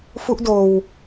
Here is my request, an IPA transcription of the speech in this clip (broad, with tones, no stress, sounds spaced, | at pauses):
f u˦˥ ʔ d oː˧ w